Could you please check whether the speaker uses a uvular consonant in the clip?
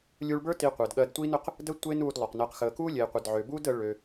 yes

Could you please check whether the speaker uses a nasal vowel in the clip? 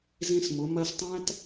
yes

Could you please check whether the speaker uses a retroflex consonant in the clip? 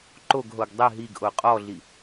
no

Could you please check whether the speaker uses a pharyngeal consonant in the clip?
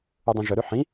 yes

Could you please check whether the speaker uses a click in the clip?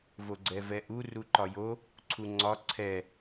yes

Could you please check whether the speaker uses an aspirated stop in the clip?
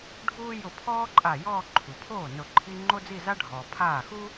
yes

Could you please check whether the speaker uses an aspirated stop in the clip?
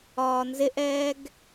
no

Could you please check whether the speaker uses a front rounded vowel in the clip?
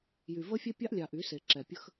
yes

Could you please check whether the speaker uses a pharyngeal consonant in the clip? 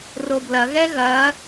no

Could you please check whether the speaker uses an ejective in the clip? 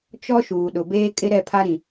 yes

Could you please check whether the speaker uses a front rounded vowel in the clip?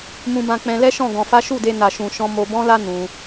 no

